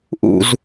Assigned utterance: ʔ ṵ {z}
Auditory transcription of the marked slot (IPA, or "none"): z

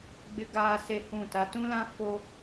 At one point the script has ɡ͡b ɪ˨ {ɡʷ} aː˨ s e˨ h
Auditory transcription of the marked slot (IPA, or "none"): ɡ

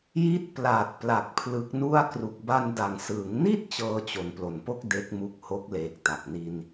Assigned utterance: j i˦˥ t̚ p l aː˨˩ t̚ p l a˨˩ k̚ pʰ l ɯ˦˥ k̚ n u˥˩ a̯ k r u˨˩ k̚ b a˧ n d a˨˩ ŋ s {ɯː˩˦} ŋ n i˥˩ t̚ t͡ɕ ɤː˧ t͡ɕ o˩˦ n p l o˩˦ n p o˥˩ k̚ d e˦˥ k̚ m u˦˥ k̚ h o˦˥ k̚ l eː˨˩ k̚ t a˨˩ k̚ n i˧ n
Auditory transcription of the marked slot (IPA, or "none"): ɯː˩˦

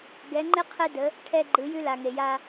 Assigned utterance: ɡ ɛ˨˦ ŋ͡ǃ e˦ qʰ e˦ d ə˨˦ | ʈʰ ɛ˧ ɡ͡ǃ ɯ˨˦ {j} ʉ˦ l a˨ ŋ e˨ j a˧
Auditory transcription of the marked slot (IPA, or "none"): j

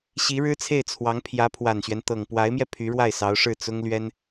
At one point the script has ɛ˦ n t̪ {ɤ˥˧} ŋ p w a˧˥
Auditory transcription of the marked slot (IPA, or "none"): ɤ˨˩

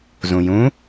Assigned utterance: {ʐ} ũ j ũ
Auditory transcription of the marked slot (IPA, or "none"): z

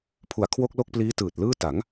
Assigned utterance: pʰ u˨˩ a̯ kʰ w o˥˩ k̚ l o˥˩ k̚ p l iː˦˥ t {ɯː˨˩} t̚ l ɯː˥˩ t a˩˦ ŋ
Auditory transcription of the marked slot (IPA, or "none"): ɯː˨˩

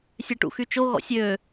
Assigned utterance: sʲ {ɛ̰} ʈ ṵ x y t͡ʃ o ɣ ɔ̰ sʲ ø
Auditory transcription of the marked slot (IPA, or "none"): ɛ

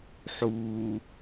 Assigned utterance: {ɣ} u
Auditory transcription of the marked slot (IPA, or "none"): ħ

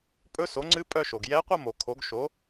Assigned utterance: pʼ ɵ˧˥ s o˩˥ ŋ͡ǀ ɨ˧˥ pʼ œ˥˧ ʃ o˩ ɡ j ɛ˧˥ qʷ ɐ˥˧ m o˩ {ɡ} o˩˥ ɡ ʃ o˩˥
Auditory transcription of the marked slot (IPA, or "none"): kʰ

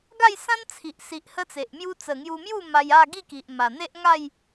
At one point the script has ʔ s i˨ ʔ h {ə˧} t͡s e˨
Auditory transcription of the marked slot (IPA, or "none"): ə˦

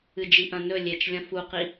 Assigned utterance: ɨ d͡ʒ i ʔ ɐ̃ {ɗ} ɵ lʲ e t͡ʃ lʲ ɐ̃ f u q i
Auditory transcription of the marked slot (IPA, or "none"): n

